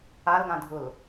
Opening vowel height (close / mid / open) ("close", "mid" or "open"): open